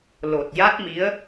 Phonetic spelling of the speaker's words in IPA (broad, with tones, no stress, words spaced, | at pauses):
lo˨˩t̚ ja˦˥t̚mi˧˥ə̯